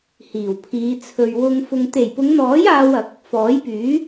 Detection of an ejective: absent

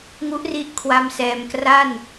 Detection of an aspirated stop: present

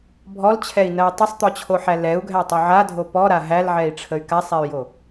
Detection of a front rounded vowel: present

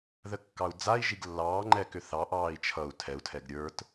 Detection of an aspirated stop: present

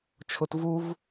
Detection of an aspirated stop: present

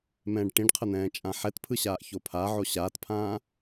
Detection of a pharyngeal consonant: present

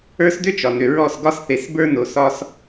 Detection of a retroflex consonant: absent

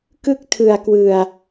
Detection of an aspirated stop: present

